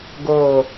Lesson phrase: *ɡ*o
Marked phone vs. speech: correct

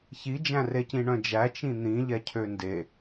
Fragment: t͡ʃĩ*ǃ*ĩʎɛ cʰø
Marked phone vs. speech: incorrect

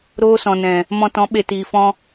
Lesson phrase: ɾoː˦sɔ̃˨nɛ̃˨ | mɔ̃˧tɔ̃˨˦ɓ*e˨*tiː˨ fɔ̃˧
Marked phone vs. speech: correct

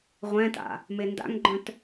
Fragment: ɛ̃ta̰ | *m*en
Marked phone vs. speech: correct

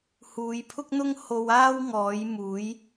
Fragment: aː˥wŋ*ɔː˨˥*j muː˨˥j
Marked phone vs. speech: correct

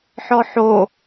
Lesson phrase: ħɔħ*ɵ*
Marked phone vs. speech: incorrect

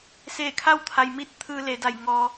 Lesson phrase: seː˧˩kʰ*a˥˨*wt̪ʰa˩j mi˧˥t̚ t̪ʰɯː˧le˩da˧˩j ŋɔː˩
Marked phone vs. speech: correct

